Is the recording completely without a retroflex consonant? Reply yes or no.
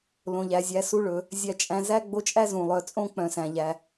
no